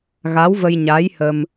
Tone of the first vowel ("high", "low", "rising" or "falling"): rising